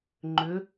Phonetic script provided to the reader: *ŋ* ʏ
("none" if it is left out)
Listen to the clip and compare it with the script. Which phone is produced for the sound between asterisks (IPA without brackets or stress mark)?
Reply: ŋ͡ǃ